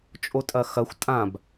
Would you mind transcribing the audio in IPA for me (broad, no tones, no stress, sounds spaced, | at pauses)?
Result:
t͡ʃʼ o tʼ ɐ x ɐ xʷ tʼ ã b